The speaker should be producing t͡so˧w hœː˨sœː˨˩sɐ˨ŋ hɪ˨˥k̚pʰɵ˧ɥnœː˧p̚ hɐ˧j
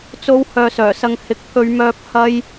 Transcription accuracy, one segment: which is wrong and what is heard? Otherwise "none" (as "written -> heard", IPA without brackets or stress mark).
n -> m